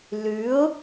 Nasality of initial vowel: oral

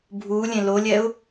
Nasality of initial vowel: oral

